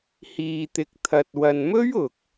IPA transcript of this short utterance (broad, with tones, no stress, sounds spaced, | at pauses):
h iː˨ t̪ ɪ˨ k̚ t̪ʰ ɐ˨ t̚ w ɐ˨ n m ɵ˥ ɥ ʊ˨ k̚